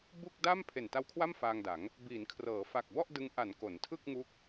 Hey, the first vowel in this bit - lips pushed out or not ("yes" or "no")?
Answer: yes